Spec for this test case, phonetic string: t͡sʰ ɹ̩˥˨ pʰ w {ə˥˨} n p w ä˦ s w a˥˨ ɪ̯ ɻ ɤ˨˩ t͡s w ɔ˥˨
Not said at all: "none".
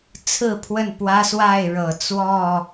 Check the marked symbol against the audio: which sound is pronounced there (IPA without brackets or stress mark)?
ə˥˨